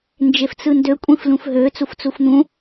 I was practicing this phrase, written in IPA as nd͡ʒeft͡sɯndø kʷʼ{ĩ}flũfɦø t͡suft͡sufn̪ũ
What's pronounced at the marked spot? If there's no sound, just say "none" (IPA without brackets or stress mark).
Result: ĩ